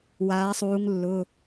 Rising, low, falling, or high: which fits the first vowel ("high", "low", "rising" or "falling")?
rising